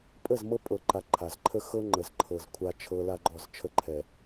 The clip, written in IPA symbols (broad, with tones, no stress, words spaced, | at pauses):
pʼə˦˨zmɤ˦pʼɤ˨ǃa˨ ǃʰa˨zǃʰə˦xɤ˦ ŋ͡ǃə˨zǃʰɤ˨z kʷʰa˦t͡ʃʰɤ˦ la˦ɡ͡ǃɔ˦˨z t͡ʃʰə˦ǃʰɛ˨